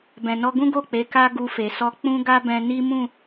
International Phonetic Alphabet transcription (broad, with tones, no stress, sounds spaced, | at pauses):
b ɛ̃˨ n ɔ˧ ɡ ũ˦ ɡ o˦˨ k͡p e˨˦ k a˦ ɡ u˧ f e˨ s ɔ˧ k͡p ũ˦ ɡ a˦ b ɛ̃˧ n i˦ m ũ˦˨